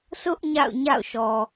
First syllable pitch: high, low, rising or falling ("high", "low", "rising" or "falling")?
high